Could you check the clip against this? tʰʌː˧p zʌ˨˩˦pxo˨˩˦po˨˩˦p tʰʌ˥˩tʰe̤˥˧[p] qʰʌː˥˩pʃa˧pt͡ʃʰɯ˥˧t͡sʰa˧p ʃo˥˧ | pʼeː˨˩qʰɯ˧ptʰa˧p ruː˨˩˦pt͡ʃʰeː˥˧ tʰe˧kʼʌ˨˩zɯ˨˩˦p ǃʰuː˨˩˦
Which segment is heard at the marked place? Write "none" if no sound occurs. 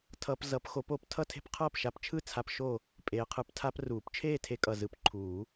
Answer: p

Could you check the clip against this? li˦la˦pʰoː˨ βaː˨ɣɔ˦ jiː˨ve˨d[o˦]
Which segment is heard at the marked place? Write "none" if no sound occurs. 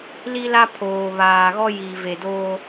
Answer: oː˦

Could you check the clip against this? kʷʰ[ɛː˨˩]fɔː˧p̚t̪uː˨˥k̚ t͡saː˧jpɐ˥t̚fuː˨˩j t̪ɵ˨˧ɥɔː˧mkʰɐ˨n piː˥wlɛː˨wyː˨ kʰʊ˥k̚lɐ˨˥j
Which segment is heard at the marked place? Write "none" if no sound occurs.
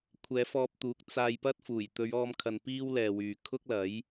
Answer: ɛː˨˧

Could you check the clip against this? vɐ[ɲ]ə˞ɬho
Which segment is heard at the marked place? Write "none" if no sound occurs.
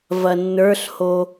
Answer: nː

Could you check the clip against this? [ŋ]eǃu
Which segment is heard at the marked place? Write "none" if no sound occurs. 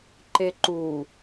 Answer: ǃ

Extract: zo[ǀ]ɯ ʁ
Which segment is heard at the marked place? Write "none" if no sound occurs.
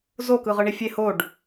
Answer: k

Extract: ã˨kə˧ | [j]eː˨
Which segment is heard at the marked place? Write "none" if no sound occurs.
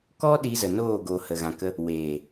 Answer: w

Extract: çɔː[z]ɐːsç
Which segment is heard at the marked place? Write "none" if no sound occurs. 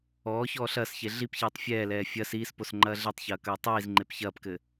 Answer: ɬ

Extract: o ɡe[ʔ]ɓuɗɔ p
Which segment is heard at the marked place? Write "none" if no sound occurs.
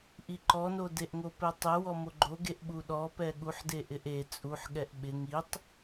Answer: ʔ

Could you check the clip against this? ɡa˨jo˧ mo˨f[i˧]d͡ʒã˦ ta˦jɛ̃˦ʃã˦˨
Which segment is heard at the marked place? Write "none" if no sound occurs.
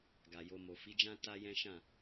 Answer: i˨˦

